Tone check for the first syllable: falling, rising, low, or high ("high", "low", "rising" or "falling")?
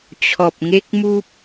low